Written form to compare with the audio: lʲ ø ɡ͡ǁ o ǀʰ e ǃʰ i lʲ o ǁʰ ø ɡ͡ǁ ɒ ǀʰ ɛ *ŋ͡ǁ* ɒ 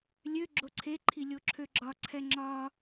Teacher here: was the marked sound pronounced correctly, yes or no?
yes